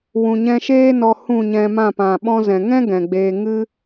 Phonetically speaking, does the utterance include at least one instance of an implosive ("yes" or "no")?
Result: yes